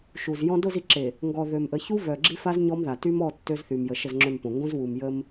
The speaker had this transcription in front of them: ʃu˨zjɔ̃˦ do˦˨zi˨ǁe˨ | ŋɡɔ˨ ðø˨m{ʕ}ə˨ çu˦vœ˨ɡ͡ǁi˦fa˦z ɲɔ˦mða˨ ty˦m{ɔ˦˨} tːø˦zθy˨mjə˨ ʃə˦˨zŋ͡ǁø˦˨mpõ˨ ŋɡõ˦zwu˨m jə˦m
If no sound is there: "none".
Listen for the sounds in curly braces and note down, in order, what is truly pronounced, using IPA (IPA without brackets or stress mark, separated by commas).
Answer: ʔ, ɔ˦˨